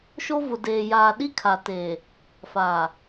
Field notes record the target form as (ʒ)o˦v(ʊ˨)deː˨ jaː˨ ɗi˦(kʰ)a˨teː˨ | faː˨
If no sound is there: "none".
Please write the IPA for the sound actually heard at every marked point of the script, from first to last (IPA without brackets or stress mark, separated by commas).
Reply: ʃ, ʊ˨, kʰ